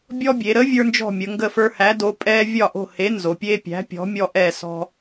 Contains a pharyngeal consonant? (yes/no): no